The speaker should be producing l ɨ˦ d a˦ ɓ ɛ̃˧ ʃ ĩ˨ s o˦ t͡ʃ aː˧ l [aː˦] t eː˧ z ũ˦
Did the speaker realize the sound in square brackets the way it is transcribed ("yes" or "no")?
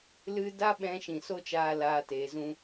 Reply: yes